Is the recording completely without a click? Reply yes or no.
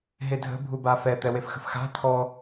yes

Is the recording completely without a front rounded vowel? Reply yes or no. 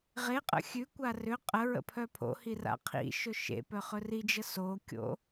no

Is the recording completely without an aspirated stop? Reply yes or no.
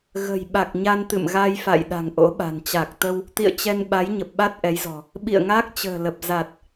yes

